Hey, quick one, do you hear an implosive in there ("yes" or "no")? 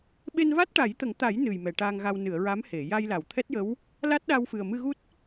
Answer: yes